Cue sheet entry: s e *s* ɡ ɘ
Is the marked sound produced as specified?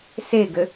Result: no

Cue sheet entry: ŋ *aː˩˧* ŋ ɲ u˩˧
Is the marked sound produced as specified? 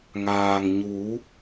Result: no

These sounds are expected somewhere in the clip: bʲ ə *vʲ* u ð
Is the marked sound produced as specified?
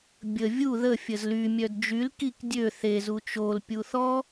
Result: yes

